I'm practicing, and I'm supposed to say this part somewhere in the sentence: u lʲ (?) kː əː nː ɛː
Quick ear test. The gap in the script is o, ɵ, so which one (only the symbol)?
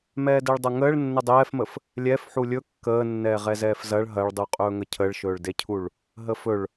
ɵ